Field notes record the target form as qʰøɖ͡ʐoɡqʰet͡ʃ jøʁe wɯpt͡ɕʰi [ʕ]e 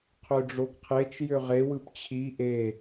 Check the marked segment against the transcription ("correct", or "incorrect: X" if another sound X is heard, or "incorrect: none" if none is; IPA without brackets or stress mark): incorrect: ʔ